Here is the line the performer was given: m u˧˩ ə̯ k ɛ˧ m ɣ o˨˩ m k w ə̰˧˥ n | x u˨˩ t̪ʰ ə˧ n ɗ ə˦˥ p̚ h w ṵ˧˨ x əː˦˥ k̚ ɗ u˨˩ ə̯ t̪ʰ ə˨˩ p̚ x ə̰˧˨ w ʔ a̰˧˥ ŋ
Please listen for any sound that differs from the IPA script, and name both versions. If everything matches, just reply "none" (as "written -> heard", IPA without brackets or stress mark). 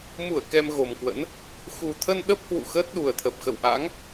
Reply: k̚ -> t̚